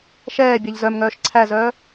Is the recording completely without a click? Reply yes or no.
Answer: no